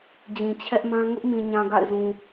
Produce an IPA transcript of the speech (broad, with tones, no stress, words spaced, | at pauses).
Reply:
d͡ʑĩ˨t͡ɕʰɛ˦ʔmã˦ ŋʊ˦ʔmĩ˨ɲã˨ ɡa̰˦˨ɪ̯zũ˨